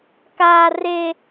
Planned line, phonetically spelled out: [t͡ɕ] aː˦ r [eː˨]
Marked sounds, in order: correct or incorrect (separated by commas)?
incorrect, incorrect